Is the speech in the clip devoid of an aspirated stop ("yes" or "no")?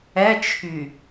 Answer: no